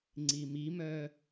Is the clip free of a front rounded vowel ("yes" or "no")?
no